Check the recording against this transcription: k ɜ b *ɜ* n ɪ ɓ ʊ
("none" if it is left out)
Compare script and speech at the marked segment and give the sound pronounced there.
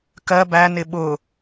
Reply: æ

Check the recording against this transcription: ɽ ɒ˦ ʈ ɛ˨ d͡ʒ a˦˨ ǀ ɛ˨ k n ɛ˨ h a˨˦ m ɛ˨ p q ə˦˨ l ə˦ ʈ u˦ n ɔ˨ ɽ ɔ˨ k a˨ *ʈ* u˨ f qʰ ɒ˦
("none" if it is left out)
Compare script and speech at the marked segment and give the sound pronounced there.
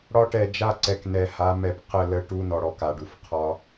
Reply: ɖ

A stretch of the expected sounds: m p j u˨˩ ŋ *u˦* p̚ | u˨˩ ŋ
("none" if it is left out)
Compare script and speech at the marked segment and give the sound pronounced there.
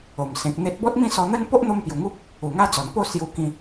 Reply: u˦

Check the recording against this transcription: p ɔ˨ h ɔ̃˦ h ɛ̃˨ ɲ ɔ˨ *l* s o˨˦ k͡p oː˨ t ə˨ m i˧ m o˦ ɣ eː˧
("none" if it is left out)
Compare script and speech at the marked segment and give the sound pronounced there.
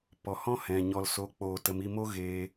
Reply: l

